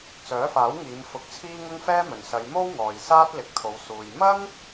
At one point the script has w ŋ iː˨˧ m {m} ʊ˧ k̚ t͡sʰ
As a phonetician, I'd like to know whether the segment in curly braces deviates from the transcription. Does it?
yes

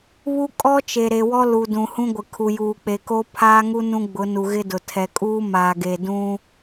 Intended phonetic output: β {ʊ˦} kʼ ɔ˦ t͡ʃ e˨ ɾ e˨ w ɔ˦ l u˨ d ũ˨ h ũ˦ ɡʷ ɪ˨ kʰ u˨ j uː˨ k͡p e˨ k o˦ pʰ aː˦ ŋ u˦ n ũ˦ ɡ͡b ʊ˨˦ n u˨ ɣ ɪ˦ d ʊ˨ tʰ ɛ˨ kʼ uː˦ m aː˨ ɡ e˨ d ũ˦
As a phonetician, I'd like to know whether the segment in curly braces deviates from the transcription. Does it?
yes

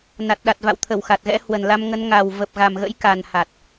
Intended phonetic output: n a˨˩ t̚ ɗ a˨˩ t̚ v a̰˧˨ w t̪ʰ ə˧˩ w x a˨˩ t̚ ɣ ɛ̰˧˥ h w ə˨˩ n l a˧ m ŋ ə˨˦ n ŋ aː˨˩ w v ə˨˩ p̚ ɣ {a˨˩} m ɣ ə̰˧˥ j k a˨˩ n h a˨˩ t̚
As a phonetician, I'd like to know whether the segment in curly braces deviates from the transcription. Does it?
no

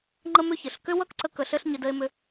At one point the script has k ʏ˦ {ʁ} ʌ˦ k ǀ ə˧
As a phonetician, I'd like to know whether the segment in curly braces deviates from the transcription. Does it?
yes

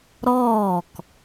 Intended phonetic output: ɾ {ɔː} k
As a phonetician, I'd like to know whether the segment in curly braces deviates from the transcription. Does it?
no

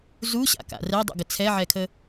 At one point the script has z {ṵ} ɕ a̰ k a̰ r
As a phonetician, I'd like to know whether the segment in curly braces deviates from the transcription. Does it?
yes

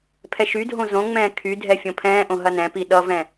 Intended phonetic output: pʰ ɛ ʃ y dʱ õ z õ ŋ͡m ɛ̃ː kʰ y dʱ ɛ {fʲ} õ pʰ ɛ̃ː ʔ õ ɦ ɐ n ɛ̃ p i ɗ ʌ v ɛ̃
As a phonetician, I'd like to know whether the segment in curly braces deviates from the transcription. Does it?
no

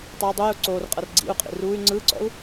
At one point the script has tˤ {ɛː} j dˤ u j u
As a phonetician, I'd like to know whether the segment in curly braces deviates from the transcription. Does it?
yes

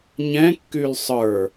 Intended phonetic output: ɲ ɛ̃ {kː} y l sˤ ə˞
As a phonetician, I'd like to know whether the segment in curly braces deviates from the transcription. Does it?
no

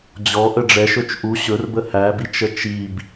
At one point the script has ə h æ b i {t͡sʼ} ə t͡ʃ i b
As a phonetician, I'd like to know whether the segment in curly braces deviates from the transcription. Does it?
yes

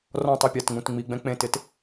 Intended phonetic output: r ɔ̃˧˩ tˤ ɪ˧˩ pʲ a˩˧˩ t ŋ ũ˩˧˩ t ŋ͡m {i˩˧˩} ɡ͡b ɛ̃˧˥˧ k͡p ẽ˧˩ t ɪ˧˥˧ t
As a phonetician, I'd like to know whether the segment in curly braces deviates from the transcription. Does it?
no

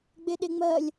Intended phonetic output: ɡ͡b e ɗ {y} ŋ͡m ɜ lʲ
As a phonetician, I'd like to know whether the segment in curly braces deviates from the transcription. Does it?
yes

